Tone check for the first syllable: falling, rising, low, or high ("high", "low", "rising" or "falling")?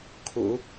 low